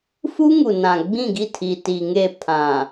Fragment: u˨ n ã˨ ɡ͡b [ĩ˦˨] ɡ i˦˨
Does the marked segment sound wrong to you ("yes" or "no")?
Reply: no